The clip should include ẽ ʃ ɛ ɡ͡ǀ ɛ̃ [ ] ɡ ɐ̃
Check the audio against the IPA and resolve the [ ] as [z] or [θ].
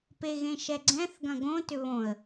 θ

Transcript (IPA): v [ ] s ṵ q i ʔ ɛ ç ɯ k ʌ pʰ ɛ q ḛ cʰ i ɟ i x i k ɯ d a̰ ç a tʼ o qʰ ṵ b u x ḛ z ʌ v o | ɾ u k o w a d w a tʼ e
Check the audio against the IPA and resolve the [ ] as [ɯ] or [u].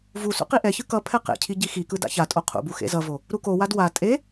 u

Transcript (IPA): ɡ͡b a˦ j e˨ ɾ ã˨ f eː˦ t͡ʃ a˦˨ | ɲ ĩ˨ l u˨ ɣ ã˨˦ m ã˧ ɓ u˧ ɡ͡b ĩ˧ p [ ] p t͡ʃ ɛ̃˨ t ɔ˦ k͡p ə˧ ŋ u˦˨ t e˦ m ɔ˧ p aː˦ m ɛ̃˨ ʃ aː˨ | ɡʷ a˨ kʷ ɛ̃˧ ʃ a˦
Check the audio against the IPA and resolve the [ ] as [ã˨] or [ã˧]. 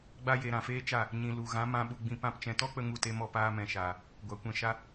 ã˧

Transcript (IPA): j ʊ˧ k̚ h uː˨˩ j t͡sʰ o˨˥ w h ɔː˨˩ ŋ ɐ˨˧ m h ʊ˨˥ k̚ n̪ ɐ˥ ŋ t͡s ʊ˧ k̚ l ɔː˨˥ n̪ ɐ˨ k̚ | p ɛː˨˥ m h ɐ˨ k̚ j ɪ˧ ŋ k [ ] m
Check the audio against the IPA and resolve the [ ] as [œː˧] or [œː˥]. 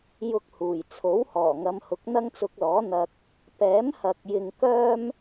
œː˥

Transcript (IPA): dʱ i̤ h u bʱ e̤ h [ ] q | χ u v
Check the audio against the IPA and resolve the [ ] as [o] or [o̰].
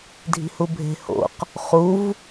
o̰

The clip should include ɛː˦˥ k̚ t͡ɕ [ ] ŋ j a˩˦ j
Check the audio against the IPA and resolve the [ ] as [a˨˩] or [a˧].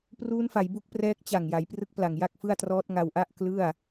a˨˩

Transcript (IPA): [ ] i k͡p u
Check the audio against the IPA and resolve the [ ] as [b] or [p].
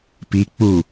p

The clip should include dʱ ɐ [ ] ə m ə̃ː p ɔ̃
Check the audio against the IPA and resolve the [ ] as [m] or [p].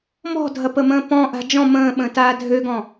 p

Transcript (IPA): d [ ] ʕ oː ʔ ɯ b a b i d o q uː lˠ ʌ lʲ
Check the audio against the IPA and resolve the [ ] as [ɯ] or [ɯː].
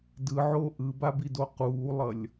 ɯ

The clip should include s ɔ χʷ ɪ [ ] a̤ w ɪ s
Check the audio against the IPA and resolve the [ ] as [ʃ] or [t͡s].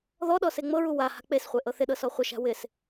ʃ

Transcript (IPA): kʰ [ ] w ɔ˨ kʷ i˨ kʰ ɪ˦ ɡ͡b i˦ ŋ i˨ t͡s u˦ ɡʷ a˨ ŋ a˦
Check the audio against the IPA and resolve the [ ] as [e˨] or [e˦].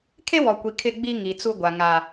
e˦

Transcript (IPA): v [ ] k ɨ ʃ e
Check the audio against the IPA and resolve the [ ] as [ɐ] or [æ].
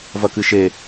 ɐ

